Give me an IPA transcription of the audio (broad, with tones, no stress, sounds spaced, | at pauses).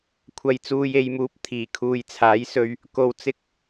kʷʰ ɐ˨ j t͡s uː˨ j e˨ j m uː˨˥ p̚ t̪ʰ iː˨˩ kʰ uː˨ j t͡sʰ aː˨˥ j s ɵ˧ ɥ | k o˧ w t͡s ɪ˥ k̚